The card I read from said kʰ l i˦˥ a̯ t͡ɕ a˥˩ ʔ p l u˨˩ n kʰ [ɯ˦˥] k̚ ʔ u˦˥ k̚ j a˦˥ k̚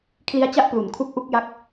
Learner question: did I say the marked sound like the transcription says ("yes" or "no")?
no